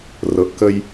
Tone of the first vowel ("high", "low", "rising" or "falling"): low